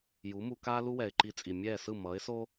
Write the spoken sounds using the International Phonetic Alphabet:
j u˩˥ m u˧ k aː˥ l u˥ w ɛ˩ ɪ̯ ǃ i˧ t͡sʼ i˩ mʲ ɛː˥˩ s ɯ˥˩ m ʌː˩˥ ɪ̯ s oː˥

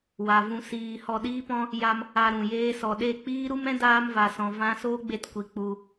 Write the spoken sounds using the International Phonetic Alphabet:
w a˨ v ũ˧ s iː˧ h ɔ˧ ɗ iː˦ p ɔ̃˦ | j a˧ m | a˧ ɾ ũ˨ j eː˦ s ɔ˧ ɗ e˦˨ k͡p iː˦ ɾ u˦ m ɛ̃˦ d aː˦ m v a˧ s ɔ̃˧ v ã˦ s oː˦ ɡ͡b e˦˨ t kʷ i˧ k͡p u˧

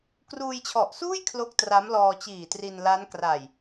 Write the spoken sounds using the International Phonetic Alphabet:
k r uː˧ j t͡ɕʰ ɔ˨˩ ʔ s uː˥˩ j kʰ l o˦˥ k̚ t r a˦˥ m l ɔː˧ t͡ɕ iː˨˩ t r i˧ n l a˦˥ n k r a˨˩ j

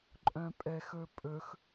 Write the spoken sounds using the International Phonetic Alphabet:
ǃʼ œ̃ pʼ ɛ x ɵ pʼ ɵ x

